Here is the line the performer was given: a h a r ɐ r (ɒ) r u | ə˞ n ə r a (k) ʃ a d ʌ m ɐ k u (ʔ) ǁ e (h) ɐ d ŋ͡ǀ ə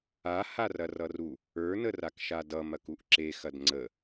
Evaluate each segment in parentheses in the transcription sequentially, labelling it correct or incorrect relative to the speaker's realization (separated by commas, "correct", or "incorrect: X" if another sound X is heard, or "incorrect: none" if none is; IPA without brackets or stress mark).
incorrect: ʌ, correct, correct, incorrect: x